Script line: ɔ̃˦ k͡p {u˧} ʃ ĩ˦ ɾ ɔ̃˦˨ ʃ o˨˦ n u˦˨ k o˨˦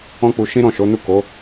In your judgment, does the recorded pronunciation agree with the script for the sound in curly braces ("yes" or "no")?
yes